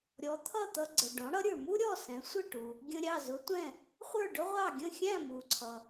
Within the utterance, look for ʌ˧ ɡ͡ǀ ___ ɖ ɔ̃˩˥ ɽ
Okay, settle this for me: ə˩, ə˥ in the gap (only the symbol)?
ə˩